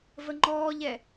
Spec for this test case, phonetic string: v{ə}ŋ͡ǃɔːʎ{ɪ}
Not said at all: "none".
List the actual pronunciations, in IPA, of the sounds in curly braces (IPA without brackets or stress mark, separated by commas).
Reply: ə, ɛ